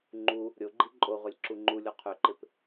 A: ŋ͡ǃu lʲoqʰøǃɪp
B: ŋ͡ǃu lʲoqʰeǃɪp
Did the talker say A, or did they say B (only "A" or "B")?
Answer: A